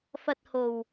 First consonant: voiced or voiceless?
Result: voiceless